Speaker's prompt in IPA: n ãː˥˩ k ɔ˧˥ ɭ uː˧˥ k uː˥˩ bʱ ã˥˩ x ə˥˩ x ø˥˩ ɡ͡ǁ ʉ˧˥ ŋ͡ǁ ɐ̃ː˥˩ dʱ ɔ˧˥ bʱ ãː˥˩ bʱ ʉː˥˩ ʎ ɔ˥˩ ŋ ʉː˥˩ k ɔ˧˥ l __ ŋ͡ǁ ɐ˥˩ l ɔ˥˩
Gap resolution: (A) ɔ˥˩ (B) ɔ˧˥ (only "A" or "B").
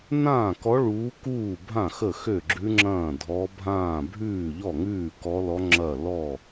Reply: B